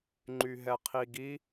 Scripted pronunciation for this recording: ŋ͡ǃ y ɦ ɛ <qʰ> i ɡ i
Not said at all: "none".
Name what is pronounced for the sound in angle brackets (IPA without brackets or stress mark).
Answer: qʰ